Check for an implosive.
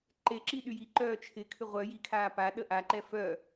present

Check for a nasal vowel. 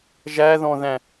present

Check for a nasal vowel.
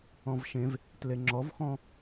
present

